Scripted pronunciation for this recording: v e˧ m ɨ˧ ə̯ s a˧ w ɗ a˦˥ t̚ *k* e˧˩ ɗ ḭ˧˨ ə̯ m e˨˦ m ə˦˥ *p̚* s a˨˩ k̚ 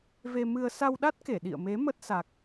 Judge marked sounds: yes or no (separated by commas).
yes, no